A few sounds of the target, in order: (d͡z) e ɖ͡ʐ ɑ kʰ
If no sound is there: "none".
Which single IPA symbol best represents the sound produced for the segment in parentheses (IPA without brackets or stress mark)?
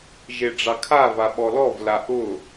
ʒ